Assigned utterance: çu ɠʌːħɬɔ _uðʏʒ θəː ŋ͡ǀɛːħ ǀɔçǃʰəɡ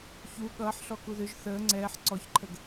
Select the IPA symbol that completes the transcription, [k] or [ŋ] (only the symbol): k